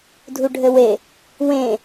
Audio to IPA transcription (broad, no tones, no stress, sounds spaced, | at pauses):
dʱ u ɖʱ ɘ w e | w ẽ